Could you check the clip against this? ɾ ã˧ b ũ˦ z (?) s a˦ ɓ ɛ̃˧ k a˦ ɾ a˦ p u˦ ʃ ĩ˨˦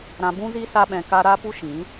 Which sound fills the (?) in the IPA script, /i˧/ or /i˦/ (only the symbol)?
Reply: i˦